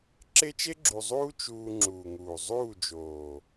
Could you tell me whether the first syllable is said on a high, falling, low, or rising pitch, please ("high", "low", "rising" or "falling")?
high